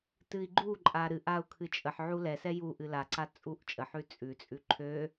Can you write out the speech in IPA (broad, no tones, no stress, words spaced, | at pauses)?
tɨi̯ɡ͡ǃuǃʼa ɾɨʔ au̯kʰɨt͡ʃʼəħʕu lɛsɛ juʔɨ laǀa t͡sʼuʔt͡ʃʼəħʉ t͡sʼʉt͡sʼʉ ǃʰø